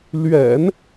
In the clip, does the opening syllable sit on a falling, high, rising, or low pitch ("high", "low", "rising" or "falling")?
low